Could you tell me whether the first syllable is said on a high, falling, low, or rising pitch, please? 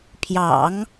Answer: low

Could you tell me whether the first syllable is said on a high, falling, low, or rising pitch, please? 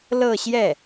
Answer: falling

